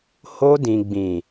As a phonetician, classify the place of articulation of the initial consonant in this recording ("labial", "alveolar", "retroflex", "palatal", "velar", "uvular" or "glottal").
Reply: glottal